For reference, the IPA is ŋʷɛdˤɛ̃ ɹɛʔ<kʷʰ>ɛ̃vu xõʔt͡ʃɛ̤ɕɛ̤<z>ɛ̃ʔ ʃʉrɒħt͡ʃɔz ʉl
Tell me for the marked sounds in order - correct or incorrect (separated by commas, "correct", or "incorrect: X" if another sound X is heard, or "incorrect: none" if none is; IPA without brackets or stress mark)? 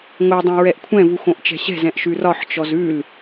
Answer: correct, correct